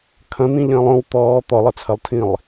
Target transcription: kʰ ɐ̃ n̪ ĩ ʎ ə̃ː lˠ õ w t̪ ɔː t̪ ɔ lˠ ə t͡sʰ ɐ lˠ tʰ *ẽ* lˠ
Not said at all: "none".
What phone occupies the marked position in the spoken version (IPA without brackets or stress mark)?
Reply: ĩ